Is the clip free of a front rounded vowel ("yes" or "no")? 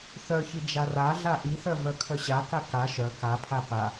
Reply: no